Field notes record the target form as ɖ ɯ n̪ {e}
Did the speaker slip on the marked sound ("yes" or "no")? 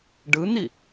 yes